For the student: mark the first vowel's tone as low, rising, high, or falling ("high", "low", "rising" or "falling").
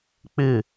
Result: falling